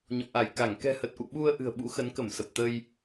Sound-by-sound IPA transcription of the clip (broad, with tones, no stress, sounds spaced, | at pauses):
ɲ ɔ̰˧˨ ʔ a˧˩ j k a˧˩ ŋ k ɛ̤˨˩ h ə˨˩ t̚ ʔ ṵ˧˨ ɓ u˧ ə̯ ʔ ɨ̤˨˩ ə̯ ɓ ṵ˧˥ x ə˨˦ n k ə˧˩ m s ə˨˩ p̚ t̪ ə˧ j